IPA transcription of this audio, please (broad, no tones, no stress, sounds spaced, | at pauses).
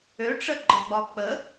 ø ʈ͡ʂ ə ɡ͡ǃ ɒ ɡ͡b ɒ k͡p ə